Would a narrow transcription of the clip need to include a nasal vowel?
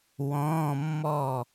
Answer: yes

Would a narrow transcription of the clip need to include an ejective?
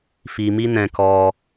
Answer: no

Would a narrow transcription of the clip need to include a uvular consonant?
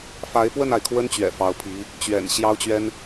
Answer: no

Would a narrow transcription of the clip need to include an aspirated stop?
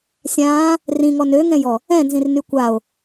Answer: no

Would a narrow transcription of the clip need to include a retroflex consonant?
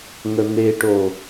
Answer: yes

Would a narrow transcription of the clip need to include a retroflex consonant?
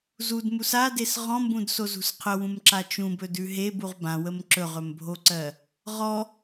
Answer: no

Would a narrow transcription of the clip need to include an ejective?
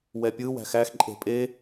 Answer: yes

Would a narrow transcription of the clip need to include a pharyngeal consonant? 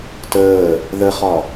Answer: no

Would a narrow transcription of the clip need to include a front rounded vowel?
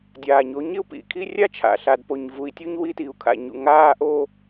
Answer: no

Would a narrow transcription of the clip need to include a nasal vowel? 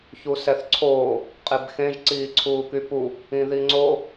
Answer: yes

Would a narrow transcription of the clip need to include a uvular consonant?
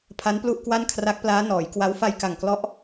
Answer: no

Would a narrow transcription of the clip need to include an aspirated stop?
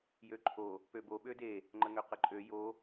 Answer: yes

